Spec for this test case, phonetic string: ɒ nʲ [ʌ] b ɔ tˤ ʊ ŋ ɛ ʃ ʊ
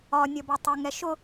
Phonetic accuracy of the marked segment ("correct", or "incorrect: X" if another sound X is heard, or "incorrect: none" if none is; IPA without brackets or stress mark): correct